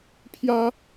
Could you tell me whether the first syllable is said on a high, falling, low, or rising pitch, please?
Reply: high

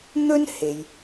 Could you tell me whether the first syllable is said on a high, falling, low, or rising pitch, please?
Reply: high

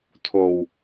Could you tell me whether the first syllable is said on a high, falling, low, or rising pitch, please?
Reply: low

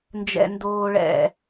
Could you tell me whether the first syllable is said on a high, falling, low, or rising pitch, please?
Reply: low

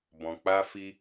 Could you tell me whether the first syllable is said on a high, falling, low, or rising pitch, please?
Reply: low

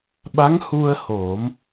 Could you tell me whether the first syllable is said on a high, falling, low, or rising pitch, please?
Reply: rising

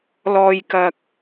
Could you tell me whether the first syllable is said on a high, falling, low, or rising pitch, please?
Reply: low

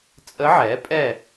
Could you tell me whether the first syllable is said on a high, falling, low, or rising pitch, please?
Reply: rising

